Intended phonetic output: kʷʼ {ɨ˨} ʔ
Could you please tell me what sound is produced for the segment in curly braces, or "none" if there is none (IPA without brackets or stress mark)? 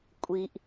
i˨